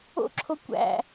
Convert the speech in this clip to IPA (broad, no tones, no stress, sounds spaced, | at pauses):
o̰ ǁʰ o kʷ æ̰